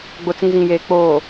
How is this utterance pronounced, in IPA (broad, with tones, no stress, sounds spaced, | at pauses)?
ɡ͡b ʊ˨ t͡s ĩ˨ z ĩ˨ j eː˨ k͡p oː˨